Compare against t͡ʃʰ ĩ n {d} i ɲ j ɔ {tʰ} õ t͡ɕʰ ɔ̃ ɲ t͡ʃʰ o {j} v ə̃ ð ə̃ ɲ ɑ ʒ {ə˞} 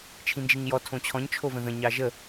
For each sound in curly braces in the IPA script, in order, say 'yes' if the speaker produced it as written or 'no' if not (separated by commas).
no, yes, no, no